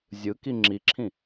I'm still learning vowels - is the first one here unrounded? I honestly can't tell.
yes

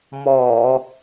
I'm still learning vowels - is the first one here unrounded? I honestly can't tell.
no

